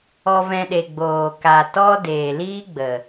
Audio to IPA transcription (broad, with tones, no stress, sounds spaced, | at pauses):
ɔ˧ v ɛ̃˧ ɗ e˨ ɡ͡b oː˨ k a˨ t ɔ˦ d eː˨ l iː˦ ɡ͡b ə˨